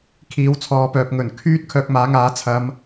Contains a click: no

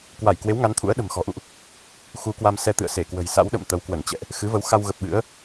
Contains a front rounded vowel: no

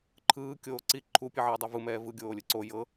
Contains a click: yes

